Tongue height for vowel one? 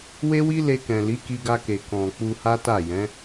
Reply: mid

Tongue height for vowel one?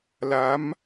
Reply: low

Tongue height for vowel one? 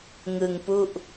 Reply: high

